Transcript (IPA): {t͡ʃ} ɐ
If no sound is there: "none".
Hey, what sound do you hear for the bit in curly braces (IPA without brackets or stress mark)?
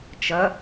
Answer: t͡ʃ